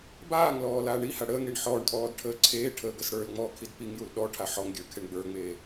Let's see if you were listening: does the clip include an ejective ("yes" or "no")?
yes